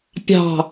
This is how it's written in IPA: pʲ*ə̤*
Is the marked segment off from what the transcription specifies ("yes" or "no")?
yes